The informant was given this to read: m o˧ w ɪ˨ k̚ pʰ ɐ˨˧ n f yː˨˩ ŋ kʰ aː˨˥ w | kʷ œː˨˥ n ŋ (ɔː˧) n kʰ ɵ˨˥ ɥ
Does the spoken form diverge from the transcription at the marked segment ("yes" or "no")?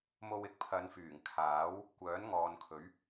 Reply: yes